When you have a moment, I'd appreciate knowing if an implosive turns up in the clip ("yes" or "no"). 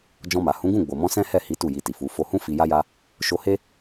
no